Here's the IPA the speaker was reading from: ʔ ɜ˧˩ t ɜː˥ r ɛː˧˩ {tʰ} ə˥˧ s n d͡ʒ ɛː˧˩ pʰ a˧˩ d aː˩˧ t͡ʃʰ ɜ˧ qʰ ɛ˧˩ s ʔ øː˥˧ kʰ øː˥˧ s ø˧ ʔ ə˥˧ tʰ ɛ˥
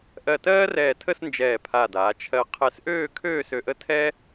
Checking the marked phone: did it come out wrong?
no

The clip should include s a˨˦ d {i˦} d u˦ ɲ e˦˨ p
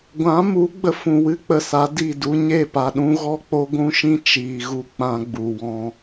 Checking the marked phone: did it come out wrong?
yes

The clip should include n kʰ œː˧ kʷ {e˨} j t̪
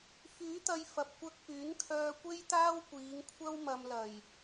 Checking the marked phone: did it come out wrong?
yes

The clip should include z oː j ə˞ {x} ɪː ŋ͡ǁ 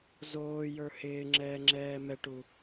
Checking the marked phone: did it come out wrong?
yes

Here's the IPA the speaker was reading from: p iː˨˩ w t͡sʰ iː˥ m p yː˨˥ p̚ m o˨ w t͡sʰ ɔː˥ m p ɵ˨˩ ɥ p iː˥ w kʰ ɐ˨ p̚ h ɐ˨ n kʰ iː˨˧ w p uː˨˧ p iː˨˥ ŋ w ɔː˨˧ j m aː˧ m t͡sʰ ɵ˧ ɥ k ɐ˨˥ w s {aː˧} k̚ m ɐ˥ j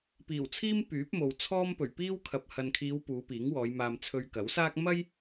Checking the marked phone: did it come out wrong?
yes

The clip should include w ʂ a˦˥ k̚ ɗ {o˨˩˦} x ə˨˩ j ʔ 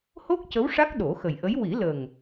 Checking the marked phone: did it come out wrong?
no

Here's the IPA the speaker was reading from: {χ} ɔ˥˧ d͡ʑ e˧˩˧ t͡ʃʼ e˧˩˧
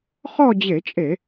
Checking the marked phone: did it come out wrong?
no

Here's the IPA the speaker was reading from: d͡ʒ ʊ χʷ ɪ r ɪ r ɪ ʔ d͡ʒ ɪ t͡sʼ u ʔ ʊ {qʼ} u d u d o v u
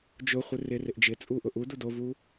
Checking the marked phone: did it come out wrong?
yes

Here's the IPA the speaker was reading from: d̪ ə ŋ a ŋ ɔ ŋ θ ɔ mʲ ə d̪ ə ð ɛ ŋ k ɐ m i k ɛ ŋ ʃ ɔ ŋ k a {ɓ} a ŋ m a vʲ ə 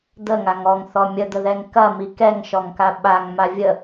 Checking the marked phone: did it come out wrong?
no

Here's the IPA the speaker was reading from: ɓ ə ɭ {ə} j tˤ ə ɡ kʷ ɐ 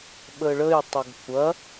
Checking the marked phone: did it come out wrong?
no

